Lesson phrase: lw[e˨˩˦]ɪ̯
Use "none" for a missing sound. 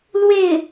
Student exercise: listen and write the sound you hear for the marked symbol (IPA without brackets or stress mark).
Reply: e˥˩